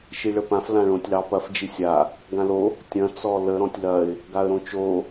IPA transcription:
ʃ i ɭ ə p ã f l ã ɭ õ tʲ l ɑ p ɐ f d͡ʒ i sʲ a | ɡ ã l o | tʲ ɐ̃ t͡s ɔ l ə ɾ ɔ̃ tʲ l ɐ ɪ̯ | ɡ a ə̯ ɾ õ t͡ʃ o

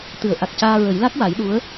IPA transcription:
t̪ ɨ˨˩˦ ə̯ ʔ a˨˩ k̚ c aː˧ ɹ ə˨˩˦ j l a˦˥ k̚ w a˨˩˦ j ɗ u˧˥ ə̯

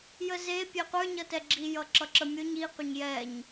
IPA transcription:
j ə z e pʲ e qʷ ə˞ ɲ ʌ t ɛ ɡ͡ǁ i j ʌ ǁ ʌ ǁ ə mʲ ʊ ɲ i qʷ ə ɲ j ɛ ɲ

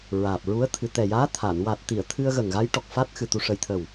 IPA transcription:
ɹ aː˨˩ p̚ ɹ u˧˥ ə̯ t̪ʰ ɨ˨˩ t̪ ɛ˨˩ j aː˧˥ t̪ʰ a˨˩˨ n w a˨˩ t̚ t̪ i˨˩˨ ə̯ t̪ʰ ɨ˧ ə̯ ɣ ə˨˩ ŋ ɣ a˧˥ j ʈ ɔ˨˩ k̚ f a˦˥ t̚ x ɨ˨˩ t̪ u˨˩ ʂ ə˨˩ j t̪ʰ ə˨˩ w

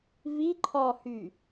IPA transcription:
v i ǃʰ ɔ h y

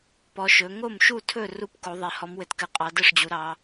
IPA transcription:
p ɔ˨˦ ʃ ɵ˨˦ ŋ o˥˩ m ʃ u˥˩ tʰ ɵ˥˩ r u˥˩ p k o˨˦ ðˤ e˨˦ h ɔ˨˦ m w ɘ˨˦ t k ɘ˨˦ qʼ ɑ˨˦ d ɘ˥˩ ʂ d͡ʑ u˨˦ ɾ ɑ˨˦

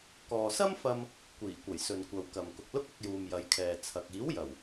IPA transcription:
k ɔː˨ s ɐ˥ m f ɐ˧ m | kʷ iː˨˩ kʷ ɐ˨˩ j s ɵ˨ n kʷ ɐ˨ w k ɐ˨ m k ʊ˨ k̚ l ʊ˥ k̚ ɐ˧ k̚ j uː˨ m j ɐ˨˧ j kʰ ɛː˨ t͡sʰ ɐ˨ k̚ iː˨˥ w j ɐ˨˩ w

